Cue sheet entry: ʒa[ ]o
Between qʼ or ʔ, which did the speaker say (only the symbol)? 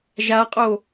qʼ